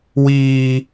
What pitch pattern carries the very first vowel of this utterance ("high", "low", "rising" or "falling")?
high